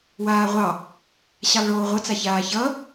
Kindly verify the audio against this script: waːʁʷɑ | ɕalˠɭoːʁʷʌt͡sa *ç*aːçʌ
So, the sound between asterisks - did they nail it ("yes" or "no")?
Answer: yes